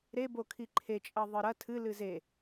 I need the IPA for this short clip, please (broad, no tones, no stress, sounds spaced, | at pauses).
ɾ e b o kʰ i ǃʰ e t͡ʃʼ ɐ ðˤ ɨ ɾ ɐ tʰ ɨ l ɨ z e